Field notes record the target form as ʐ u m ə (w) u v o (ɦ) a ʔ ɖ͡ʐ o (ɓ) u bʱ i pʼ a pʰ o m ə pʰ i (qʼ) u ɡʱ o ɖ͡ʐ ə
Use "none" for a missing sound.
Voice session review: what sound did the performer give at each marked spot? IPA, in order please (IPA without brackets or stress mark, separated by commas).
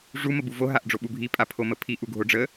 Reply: b, ɦ, ɓ, ʔ